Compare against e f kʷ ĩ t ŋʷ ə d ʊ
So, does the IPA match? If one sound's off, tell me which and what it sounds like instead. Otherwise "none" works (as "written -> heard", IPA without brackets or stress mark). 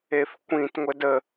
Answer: ʊ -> ə